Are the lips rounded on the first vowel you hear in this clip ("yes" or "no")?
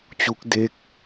yes